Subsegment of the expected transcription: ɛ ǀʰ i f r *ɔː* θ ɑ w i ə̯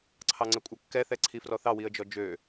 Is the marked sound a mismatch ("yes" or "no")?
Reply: yes